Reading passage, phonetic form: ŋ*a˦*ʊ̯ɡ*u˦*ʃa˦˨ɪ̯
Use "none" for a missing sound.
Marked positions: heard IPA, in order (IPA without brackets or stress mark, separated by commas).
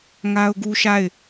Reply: a˦, u˦